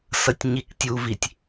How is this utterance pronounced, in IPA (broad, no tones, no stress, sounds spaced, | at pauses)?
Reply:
s ʌ tʲ ɲ i k tʲ u v i tʲ